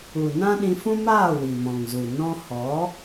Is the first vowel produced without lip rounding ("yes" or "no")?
no